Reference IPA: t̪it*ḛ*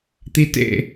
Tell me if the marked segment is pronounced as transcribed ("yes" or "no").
yes